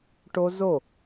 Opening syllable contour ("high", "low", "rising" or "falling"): high